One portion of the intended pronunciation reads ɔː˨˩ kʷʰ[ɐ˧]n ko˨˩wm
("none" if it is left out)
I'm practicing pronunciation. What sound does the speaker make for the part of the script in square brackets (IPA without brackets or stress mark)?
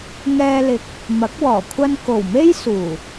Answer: ɐ˧